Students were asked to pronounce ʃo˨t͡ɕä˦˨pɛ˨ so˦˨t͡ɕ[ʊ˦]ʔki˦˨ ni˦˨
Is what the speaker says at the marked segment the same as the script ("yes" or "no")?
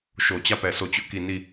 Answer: yes